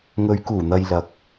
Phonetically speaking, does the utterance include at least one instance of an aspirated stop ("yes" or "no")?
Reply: no